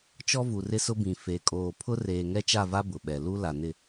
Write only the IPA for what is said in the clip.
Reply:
t͡ʃɔ˦vu˨rɪ˦ sʊ˦bĩ˨ fe˨ kʼoː˨pʰʊ˦ reː˨ŋɛ˦t͡ʃa˦˨va˦ bʊ˨ɓɛ˨ lu˦ la˨nɪ˦˨

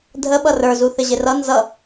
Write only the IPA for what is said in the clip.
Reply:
dʱəɓʌ rə˞zuθɪʑɪ rʌ nzʌ

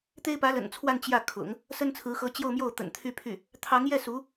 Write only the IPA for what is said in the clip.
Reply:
t̪e˥ɪ̯pä˧˥lə̰˨˩nt͡sʰwa˥˧n t͡ɕjä˥˩ kʰʊ̰˨˩˦ŋ | sə˥nt͡sʰɹ̩˧˥xɤ˧˥ t͡ɕjo˥˧ʊ̯mjo˥˩ʊ̯ t̪ə̰˨˩n t̪ʰy˥˧pʰy˥˩ | t̪ʰɑ˧˥ŋ jɛ˥˩su˧˥

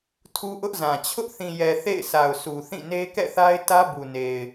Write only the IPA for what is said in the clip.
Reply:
tʰu˦ʔʊ˦ʔzã˨ t͡ɕʰʊ˦ʔθĩ˨jɛ˨ θḛ˦˨ɪ̯sʰa˨ʊ̯su˨ θĩ˦˨ ne˦kɛ̰˦˨θa˦ɪ̯ tä˦bu˨ne˨ɪ̯

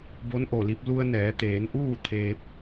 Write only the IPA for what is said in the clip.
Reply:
bo˧˥nʔo˧˩li˧p̚ lu˧ə̯nɛː˩˧t̪eː˩˧nʔuː˥˨ t̪ʰeː˧p̚

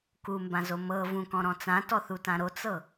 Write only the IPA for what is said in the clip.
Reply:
kumbãzo mɤ vũkɔ̃ɾɔ̃ t͡sãtɔθutã ɾot͡sɤ

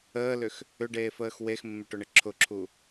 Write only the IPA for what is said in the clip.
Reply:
əːlʏx | ʏɖeːfəːx wexmːɪʈʊɳɪ ǁʰʊǁʰu

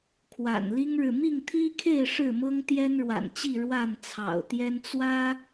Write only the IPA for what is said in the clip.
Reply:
kʰwa̰˨˩nli˦ŋɻɻ̩˨ mi˥˨ŋt̪ʰi˦kʰe˥˨ɪ̯ ʂɻ̩˥˨mɤ˦ŋ t̪jɛ˦nɻwa̰˨˩nt͡ɕi˥˨ ɻwa˥˨nt͡sʰɑ̰˨˩ʊ̯t̪jɛ˦n t͡swä˦

